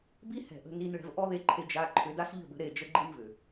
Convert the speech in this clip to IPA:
b i˦ h ɛ̤˨ ʔ ə̤˧ n i˧ n ɭ ɛ̤˧ v ʔ ɔ˦ ð e˧ ǃʰ e˧ d͡ʒ a˧ ǃʰ ʏ˧ d a˦ s ʎ ə̤˦˨ b ə̤˧ ɾ e˨ d͡ʒ ə˧ ɡ͡ǃ i˦ n v ʏ˨

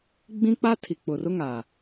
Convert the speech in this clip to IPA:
ɡ͡b ĩ˦ k͡p a˦ tʰ i˨ k͡p ʊ˨ r ʊ˦ ŋ a˨

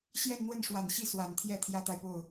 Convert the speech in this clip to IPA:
ɕ j ɛ˥˧ n n̪ w ə˥˩ n ʂ w a˨˩ n ɕ i˥˩ s w a˨˩ n t̪ʰ j ɛ˥˩ t̪ʰ j ä˥ t̪ a˨ ɪ̯ p o˥˩ ʊ̯

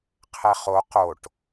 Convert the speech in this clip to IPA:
qʰ ɛ χ o q o ʈ

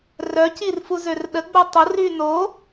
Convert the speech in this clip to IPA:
r œ c i r f u z ø r ɗ ə ɡ͡b o tˤ ʊ r y n o

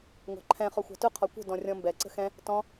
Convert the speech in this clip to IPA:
ŋʷ ɑ̤ ǃʰ ɛ̃ χ ɔ xʷ ɑ̤ t ʊ qʰ ɔ kʷ ə̤ d ɔ̃ rʲ ɔ̃ m b ɛ ǀ ə̤ x ɛ̃ | t ɔ̃

